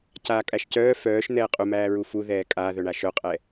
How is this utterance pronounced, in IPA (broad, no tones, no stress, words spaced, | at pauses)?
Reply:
caːkʼæʃcœː fœːʃ n̪ɛːqʼumæː ɹufuðɛː kʼaːðœɳa ʃœqʼɛ